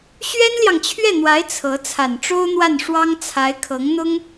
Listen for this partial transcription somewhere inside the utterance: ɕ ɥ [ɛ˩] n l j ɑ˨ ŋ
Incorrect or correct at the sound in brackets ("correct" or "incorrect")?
incorrect